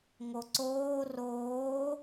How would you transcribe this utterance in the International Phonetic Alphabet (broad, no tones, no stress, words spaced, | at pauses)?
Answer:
ŋoǀoː roː